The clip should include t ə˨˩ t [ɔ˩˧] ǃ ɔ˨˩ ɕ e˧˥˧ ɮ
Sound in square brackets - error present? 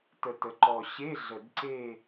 yes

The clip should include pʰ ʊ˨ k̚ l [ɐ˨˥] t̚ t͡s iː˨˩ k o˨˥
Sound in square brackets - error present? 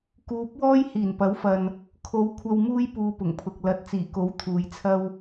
no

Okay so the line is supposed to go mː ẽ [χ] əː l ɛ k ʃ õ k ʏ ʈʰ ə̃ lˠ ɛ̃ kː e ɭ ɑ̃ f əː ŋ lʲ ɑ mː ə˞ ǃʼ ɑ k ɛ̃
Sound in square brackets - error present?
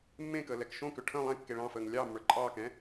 yes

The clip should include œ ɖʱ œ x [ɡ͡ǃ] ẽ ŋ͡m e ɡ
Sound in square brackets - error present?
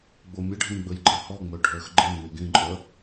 no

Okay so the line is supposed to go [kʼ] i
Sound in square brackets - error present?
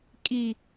no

